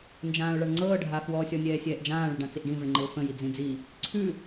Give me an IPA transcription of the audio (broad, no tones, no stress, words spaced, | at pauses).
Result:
nd͡ʒãːʊ̯ɭaɳŋ͡ǀɤː ɖʱafwɔ sʲɔnʲɛːsʲɛːʔd͡ʒãː ɭɘɖãt͡siʔɖĩ vəɳŋ͡ǃɘʊ̯fə̃ jid͡zĩd͡zi | ǀʰʉ